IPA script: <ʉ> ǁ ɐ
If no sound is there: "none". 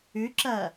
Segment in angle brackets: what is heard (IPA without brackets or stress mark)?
ʉ